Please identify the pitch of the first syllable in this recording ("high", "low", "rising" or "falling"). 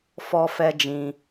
high